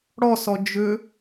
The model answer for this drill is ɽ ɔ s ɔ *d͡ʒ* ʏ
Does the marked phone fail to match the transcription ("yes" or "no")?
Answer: no